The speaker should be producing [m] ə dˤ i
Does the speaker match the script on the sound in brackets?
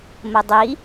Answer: yes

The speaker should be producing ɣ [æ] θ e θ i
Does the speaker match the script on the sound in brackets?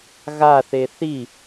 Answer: no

